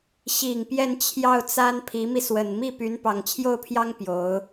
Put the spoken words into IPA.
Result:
ɕ i˨˩ ŋ p j ɛ˥˧ n t͡ɕʰ j ɑ˥˩ ʊ̯ t͡s a˥ n pʰ i˧˥ m i˧ s w ə˨˩ n m i˥˩ p y˧˥ n p ɑ˨˩ ŋ t͡ɕʰ j o˥˩ ʊ̯ pʰ j ɑ˥ ŋ p j o˧˥ ʊ̯

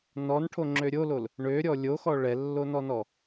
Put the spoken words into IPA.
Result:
n ɔ n ʈʰ o ŋ͡ǁ ø ɾʲ o l o l | ɳ ø ɾʲ ɔ lʲ o x ɔ ɭ ɛ lː o n ɔ n ɔ

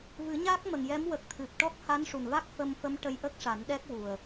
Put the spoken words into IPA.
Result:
v ɨ˨˩˦ ɲ a˦˥ k̚ m ə˨˩ ŋ j ɛ˧˥ m w ə˨˩ k̚ t̪ʰ ɨ˨˩ p̚ ʈ ɔ˦˥ k̚ h a˧˥ n ʂ u˨˩ n v a˦˥ k̚ f ə˧ m f ə˧˥ m ʈ ə˧ j ʔ ə˦˥ k̚ ʂ a˨˩˦ n ɗ ɛ˦˥ k̚ w u˨˩ ə̯

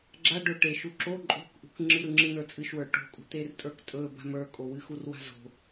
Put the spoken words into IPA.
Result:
ɡ͡ǁ a ɖ ɵ ʈ e ʃ u ǁ o ǃʼ o̤ k ʔ ṳ k ŋ͡ǁ ɨ ɾ ɯ ŋ͡ǁ ɨ n̪ ə˞ t͡sʼ ɨ ʃ w ə˞ ʈ o̤ kʼ ṳ t̪ e r tʼ ə˞ k tʼ ɵ b a̤ m ə˞ kʼ o w ɨ x u r w a̤ z o̤

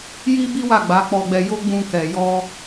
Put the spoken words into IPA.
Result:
j i˦ b i˦ w a˦˨ ɡ͡b a˨˦ k͡p ɔ˧ ɡ͡b ɛ˧ j o˦ ɡ͡b ũ˧ k ɛ˨ j ɔ˧

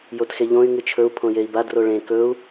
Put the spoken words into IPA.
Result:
j o t x e ʎ õ y̯ ŋ ɨ t͡ʃʰ ɵ u̯ pʰ õ j e i̯ b a d r o ɭ ẽ k ɵ u̯

